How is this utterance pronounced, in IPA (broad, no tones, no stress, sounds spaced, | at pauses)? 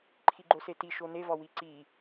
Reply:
ǃʰ i ɡ͡ǃ o s e t i ʃ o n e v ɒ w i ǀ i